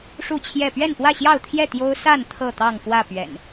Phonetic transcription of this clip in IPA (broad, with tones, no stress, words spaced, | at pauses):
ʂu˥˨t͡ɕʰjɛ˥˨ pɥɛ˥˨npwä˥˨ɕjɑ˥˨ʊ̯t̪ʰjɛ˥˨ t̪jo˦ʊ̯ sa˥˨n t̪ʰɤ˥˨t̪ɑ˥˨ŋfwä˥˨ pɥɛ̰˨˩n